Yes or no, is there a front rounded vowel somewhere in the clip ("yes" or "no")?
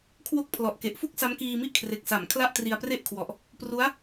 no